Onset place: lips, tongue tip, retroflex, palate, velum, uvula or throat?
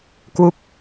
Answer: velum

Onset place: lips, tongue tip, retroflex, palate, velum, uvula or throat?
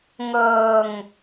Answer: velum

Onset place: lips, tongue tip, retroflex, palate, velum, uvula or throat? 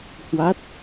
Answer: throat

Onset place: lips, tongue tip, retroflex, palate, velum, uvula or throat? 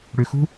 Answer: retroflex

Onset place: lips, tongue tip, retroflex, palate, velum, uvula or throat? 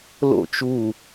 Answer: tongue tip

